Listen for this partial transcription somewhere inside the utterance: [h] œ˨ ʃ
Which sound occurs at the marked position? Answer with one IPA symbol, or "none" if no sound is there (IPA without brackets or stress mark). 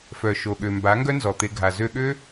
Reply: f